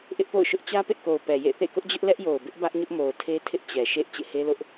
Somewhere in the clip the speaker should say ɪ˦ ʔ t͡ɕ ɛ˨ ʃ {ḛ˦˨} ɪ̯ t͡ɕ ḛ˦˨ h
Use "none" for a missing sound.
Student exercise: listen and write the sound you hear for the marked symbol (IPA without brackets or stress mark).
ḛ˦˨